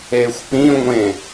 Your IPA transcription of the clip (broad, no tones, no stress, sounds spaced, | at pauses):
e xʷ p ĩ ŋʷ ẽ